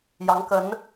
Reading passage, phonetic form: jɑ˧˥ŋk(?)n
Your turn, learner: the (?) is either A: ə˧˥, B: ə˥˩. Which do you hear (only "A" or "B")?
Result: A